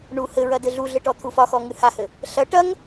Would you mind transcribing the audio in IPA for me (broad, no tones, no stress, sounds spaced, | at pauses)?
ɳ u h ɘ ɹ ɐ d ɘ ɮ u ɮ ɘ ʈ ɔ t̪ʰ u f ɒ x ɔ ŋ ɨ h a h ɘ | ɬ ɐ ʈ ɐ ŋ